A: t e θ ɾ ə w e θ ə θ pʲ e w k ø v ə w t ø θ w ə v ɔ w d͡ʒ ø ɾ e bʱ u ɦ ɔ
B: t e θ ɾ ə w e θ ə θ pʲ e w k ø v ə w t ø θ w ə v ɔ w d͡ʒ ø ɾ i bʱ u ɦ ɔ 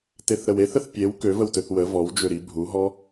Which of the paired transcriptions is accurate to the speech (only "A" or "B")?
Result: B